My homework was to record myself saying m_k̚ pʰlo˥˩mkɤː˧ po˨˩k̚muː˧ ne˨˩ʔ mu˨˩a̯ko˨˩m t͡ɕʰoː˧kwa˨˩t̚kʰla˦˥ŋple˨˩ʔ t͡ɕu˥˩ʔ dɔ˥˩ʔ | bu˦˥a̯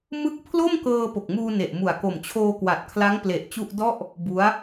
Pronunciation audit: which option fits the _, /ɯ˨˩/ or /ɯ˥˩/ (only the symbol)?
ɯ˥˩